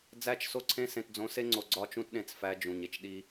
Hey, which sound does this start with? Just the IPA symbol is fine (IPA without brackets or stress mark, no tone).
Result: d͡z